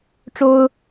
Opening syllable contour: high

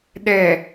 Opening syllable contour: low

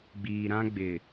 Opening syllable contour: low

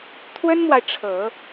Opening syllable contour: high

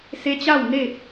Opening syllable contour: rising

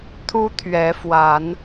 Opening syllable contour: high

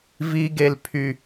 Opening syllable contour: high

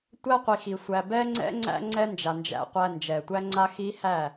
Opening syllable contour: high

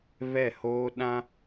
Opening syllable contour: falling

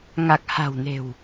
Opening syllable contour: low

